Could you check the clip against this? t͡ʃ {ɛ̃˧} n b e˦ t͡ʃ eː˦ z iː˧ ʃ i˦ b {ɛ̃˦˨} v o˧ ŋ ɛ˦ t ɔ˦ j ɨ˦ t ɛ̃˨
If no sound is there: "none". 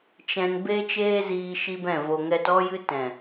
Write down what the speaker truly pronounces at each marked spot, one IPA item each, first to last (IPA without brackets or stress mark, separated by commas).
ɛ̃˧, ɛ̃˦˨